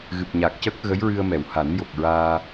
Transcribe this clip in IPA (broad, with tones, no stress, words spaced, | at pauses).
ɣɨ˨˩p̚ɲa˨˩k̚cəː˦˥k̚ ɣə˧˥jɹɨ˧ə̯mɛ˨˩˨w ha˨˩˦njo˨˩k̚ɹaː˧